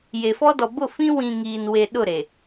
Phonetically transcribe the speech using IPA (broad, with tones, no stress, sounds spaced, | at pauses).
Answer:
j e˨ f ɔ˦ d ɔ˨ b ʊ˦˨ f ĩ˦ w ĩ˨ ŋ iː˨ n w e˨ ɗ ʊ˦˨ ɾ e˨